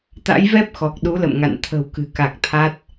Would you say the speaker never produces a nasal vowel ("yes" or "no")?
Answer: yes